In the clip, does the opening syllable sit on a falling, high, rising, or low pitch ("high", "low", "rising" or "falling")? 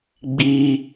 high